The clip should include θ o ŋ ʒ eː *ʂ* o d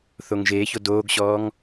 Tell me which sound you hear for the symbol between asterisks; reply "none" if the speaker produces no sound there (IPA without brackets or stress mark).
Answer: ç